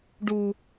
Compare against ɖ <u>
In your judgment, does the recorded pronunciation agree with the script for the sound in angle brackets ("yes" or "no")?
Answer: yes